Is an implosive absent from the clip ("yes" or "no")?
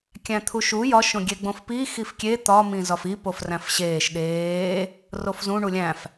no